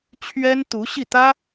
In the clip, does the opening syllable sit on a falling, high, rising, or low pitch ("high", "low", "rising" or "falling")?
high